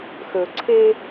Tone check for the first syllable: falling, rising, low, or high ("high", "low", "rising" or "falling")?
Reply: low